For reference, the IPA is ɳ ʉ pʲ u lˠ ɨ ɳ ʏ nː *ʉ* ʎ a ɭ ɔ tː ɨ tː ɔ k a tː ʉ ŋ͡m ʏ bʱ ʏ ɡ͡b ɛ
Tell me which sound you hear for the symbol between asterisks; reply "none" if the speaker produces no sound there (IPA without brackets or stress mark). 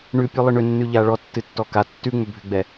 ʉ